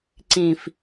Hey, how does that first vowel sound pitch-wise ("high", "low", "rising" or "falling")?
low